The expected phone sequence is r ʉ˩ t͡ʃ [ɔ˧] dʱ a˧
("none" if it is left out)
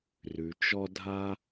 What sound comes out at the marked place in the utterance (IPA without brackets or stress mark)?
ɔ˧